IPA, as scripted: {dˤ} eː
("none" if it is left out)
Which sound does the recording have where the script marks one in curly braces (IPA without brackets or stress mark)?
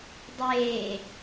dˤ